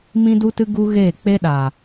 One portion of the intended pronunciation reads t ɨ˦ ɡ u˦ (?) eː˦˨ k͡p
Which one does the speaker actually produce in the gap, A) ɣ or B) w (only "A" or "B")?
A